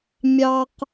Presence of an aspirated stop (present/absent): absent